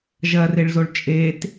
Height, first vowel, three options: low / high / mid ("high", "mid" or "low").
low